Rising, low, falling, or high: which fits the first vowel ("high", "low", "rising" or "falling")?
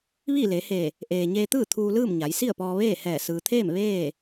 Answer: falling